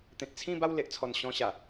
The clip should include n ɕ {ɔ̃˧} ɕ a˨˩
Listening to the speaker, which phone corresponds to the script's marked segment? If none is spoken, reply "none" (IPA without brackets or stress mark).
ɔ̃˧